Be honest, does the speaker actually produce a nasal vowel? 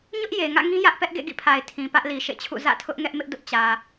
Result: yes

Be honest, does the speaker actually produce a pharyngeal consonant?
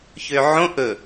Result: yes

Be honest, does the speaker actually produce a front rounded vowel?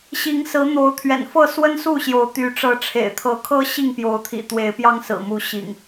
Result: yes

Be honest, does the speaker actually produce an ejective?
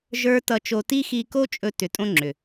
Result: yes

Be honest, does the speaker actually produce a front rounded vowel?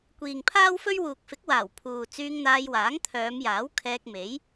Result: yes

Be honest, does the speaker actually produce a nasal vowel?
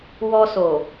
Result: no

